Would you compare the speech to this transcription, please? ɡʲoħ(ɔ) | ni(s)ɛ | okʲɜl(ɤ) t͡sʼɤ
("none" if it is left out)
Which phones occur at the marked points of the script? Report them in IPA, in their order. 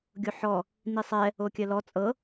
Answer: ɔ, sˤ, ɔ

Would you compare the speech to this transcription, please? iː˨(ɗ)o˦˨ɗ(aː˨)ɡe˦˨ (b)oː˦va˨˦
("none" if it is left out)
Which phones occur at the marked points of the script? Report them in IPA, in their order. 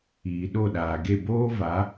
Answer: ɗ, aː˨, b

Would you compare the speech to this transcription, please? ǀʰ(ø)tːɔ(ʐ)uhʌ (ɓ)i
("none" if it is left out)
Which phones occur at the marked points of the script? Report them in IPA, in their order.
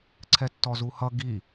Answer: ɛ, z, ɡ

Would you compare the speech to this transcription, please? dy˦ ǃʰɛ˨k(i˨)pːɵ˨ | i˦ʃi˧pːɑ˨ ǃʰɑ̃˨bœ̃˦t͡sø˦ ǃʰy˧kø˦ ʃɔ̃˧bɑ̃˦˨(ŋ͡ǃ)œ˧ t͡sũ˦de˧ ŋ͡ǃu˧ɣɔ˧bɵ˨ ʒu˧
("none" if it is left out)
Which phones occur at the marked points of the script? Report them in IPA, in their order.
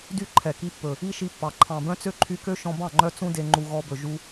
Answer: i˧, ŋ͡ǃ

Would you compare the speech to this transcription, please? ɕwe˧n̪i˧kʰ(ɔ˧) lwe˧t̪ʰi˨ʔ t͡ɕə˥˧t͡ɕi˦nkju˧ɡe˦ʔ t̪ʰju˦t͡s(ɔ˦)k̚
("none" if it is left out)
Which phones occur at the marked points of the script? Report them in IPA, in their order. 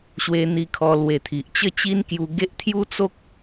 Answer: ɔ˧, o˦

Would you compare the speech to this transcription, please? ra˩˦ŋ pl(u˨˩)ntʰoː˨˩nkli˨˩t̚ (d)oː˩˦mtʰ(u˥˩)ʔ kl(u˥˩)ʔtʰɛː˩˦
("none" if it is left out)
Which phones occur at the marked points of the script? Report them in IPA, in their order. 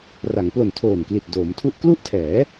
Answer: o˨˩, d, u˥˩, u˥˩

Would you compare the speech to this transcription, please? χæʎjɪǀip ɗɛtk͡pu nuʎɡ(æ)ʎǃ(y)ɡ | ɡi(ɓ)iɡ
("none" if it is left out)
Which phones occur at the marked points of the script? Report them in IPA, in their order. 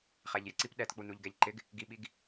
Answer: ɛ, ɪ, ɓ

